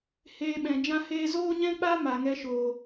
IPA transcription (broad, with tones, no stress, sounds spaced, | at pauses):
h eː˧ ɓ ɛ̃˨ d͡ʒ ã˦ h eː˦ z oː˦ ɲ ɛ̃˦ k͡p a˦ m a˨ ŋ ɛ˧ ʃ oː˨